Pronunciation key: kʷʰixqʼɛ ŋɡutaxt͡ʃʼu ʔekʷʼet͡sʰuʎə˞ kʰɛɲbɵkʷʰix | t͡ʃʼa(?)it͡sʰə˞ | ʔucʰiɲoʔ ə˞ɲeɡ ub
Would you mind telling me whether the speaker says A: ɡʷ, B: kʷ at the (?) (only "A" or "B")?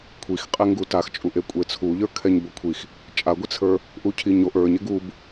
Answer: A